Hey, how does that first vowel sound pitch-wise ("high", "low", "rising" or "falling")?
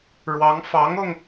rising